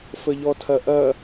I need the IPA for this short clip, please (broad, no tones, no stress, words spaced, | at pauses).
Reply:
fəʎɔtʰɐʔɐ